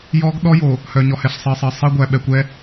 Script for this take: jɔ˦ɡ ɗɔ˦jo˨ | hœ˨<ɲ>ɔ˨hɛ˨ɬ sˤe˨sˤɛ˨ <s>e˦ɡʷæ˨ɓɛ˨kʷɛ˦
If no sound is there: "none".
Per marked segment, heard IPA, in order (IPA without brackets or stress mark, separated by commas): ɲ, sˤ